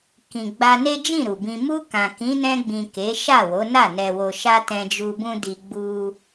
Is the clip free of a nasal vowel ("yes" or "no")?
no